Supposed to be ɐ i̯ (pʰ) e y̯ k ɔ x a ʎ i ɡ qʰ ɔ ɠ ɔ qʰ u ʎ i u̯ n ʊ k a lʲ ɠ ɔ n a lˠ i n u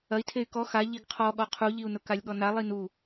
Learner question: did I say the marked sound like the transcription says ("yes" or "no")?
no